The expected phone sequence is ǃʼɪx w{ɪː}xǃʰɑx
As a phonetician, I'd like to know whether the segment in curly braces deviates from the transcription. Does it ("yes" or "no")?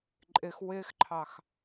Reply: no